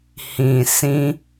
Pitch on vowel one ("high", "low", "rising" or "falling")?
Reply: low